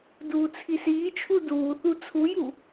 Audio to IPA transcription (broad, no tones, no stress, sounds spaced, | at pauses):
d uː t͡sʰ i s iː t͡ʃʰ u d uː θ u t͡sʰ u j u